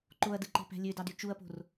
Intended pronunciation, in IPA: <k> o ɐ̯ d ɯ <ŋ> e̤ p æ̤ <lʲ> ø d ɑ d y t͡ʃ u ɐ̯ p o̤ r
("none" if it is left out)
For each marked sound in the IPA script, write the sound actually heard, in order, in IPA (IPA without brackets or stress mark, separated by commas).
ǃ, ǃ, lʲ